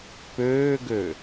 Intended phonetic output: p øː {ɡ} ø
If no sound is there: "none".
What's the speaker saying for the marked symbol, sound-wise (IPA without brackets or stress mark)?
ɡ